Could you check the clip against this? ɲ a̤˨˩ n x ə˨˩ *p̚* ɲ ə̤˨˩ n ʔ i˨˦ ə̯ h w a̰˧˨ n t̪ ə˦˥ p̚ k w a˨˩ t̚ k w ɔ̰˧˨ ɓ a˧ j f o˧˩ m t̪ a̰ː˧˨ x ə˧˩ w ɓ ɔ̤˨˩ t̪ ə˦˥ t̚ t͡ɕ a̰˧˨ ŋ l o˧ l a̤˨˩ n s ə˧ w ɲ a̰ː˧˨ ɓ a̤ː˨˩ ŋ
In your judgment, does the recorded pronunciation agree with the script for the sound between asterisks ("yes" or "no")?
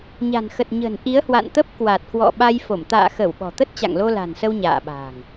no